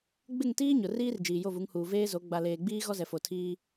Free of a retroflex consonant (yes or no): yes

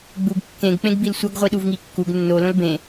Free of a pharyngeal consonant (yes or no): yes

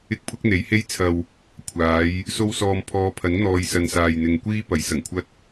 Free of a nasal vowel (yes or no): yes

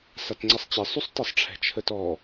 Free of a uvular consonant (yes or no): yes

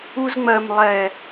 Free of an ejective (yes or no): yes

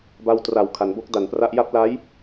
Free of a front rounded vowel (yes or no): yes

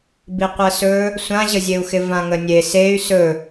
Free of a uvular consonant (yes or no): no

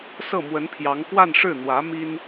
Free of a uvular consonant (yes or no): yes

